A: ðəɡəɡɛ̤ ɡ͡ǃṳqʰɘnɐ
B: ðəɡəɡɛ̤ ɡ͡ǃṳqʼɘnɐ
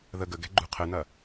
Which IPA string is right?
A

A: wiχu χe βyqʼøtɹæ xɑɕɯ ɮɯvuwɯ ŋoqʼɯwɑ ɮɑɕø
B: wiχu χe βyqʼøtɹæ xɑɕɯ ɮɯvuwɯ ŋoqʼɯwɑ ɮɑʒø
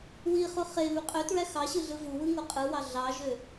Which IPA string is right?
B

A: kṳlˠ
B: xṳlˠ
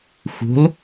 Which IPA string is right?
B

